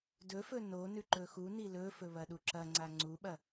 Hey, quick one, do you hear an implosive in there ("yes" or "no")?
yes